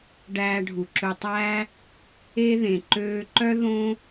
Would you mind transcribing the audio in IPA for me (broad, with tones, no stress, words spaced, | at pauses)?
ɖæː˧ɖʱu˩ǁɵ˧tˤæː˥ | e˧ðẽ˩ ǃøː˧ǃœ˥ ðõ˥